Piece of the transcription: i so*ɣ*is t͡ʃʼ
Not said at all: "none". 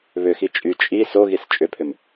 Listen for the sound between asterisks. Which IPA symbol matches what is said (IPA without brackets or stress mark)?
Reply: ɣ